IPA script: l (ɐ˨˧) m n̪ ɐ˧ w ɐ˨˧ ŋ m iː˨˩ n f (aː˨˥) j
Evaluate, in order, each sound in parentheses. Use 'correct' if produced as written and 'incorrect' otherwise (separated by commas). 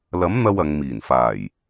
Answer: incorrect, incorrect